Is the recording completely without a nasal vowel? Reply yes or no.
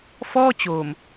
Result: yes